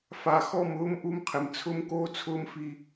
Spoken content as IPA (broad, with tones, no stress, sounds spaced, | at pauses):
f a˨ x ɔ˦˨ m ʊː˦ m ʔ u˦ m qʰ ɪ˨ m t͡sʰ ʊ˦ m k oː˦ t͡sʰ ʊː˦ m f i˨